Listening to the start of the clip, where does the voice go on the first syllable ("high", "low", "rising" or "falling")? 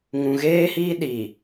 low